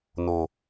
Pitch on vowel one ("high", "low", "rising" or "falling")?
low